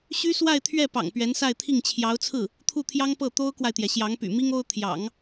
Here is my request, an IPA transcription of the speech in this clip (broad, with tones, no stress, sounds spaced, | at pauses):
ɕ y˥ s w a˥˧ ɪ̯ t̪ʰ ɥ ɛ˥˩ p ɑ̰˨˩ ŋ p ɥ ɛ˧˥ n s a˥˧ ɪ̯ t̪ʰ i˥˩ ŋ t͡ɕʰ j ɑ˧˥ ʊ̯ t͡sʰ ɹ̩˥˩ | t̪ʰ u˥˩ t̪ʰ j ɑ˥ ŋ p ɤ˥˩ t̪ o˥ ʊ̯ k w a˨ ɪ̯ t̪ j ɛ˩ ɕ j ɑ˧˥ ŋ p y̰˨˩ m i˥ ŋ o˥ ʊ̯ t̪ʰ j ɑ̰˨˩˦ ŋ